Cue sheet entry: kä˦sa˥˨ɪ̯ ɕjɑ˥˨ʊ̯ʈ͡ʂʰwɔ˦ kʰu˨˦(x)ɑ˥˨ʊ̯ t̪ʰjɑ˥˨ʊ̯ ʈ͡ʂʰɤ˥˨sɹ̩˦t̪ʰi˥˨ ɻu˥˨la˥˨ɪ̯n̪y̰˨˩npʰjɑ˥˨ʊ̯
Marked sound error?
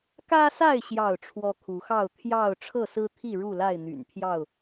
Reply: no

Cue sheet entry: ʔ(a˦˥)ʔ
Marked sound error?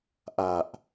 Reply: yes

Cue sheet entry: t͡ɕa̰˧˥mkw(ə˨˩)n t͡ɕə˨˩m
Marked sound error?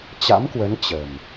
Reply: yes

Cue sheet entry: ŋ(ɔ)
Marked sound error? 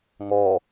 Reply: no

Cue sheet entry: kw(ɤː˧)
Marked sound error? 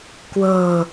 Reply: no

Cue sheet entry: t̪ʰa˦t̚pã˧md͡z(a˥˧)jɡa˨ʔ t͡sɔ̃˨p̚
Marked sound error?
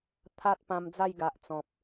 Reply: no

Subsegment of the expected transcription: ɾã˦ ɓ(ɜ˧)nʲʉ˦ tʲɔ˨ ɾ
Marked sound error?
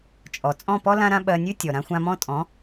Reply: no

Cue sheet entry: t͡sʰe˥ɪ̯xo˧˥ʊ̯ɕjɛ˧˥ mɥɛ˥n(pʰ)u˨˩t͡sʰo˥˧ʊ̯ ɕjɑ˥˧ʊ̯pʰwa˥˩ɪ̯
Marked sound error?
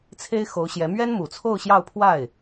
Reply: yes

